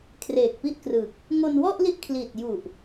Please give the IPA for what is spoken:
kʰreː˨˩k̚pi˥˩ʔkrɯ˨˩k̚ | ŋo˧nwɔ˥˩ʔli˦˥ʔ kʰliː˨˩t̚ ju˨˩ʔ

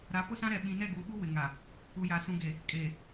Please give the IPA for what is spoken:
ɾa˨˦pʊ˦sã˦ɾɛ˨ ɓĩ˨nɛ˦˨ɡuː˨ɓu˦ wɪ˨ŋa˨ | u˨ja˨sũ˨ɡe˨ | kʼeː˨

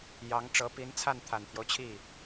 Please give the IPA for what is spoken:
jɑ˧˥ŋ ʈ͡ʂɤ˧˥pi˧˥nt͡sʰa˥˩n t̪ʰa˨˩nt̪ʰjo˦ʊ̯t͡ɕʰi˥˩

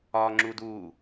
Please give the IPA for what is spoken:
ɒŋ͡ǁuduː

